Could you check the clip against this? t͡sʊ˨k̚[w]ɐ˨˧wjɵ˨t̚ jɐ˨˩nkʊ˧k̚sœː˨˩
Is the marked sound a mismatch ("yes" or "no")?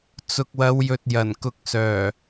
no